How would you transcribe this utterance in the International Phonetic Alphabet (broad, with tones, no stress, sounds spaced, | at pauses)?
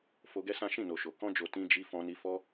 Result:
f o˧ ɡ ɛ˦ s ã˦ ʃ ĩ˦˨ n o˨ ʃ o˨ k ɔ̃˧ d͡ʒ o˨ t ĩ˧ d͡ʒ i˧ f ɔ̃˧ n i˧ f ɔ˦